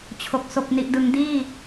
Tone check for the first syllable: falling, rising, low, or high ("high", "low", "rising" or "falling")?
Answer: low